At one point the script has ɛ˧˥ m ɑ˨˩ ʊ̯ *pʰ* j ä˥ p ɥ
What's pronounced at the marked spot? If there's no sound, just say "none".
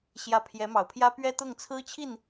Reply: pʰ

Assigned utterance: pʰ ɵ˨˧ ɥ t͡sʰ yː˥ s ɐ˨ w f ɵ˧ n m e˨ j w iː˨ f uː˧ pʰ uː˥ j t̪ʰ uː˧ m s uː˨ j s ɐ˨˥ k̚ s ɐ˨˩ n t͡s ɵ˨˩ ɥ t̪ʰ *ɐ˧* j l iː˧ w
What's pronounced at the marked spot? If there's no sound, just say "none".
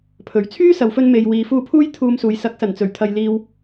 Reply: ɐ˨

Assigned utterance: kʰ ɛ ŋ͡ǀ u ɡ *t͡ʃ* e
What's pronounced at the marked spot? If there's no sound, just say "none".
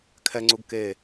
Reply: k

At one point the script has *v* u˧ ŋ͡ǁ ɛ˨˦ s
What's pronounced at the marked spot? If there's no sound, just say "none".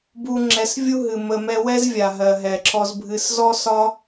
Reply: b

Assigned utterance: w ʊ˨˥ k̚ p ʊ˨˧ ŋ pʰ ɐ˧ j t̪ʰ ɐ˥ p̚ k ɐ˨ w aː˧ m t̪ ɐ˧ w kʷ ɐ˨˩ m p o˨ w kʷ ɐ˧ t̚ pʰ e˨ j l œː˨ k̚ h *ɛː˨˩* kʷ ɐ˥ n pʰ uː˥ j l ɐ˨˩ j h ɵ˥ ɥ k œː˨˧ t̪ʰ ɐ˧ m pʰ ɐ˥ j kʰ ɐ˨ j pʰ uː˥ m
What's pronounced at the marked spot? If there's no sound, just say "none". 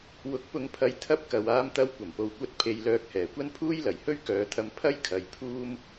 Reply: ɛː˨˩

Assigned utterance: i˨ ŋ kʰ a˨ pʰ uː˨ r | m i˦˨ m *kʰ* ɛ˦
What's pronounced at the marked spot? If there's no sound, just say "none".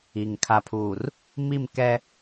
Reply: k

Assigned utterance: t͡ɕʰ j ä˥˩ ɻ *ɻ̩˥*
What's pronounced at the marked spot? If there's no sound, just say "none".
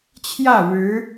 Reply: ɻ̩˧˥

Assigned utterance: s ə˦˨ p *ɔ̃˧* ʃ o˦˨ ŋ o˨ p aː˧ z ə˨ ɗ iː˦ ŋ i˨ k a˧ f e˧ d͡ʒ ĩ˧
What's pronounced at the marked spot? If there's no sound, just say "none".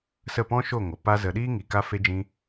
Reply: ɔ̃˦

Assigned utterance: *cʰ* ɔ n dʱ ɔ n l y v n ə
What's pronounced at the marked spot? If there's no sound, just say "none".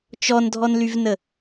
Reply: t͡ʃ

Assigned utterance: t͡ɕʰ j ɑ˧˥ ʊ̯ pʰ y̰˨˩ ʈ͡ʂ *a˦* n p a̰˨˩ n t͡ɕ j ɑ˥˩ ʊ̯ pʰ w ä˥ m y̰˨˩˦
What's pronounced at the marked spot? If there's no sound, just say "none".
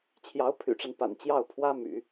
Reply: a˦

